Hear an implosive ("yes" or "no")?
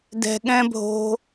yes